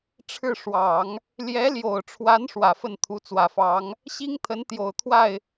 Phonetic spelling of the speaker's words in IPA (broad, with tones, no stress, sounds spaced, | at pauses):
ʈ͡ʂʰ ɻ̩˥˩ ʂ w ɑ˨˩˦ ŋ | l j ɛ˧˥ l j o˨˩ ʊ̯ ʈ͡ʂʰ w a˧˥ n ʂ w ä˨˩ f ə˥˩ n t̪ʰ u˧˥ t͡s w ä˨˩ f ɑ˧˥ ŋ | ɕ i˥ ŋ t̪ʰ ə˧˥ n t̪ j o˨˩ ʊ̯ t̪ʰ w a˥˩ ɪ̯